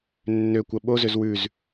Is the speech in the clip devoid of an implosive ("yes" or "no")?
no